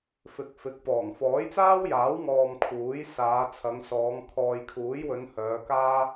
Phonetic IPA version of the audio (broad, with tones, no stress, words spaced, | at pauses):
fɪ˨k̚fɪ˨˥k̚pɔː˨˩ŋ fɔː˨˥jt͡saː˥wjaː˨˥wŋɔː˨m kʰuː˨˥jsaː˨˧ t͡sʰɐ˨˧ŋsɔː˨˧ŋ kʰɔː˨jkʰuː˨˥jwɵ˨˧n hœː˨˧kaː˥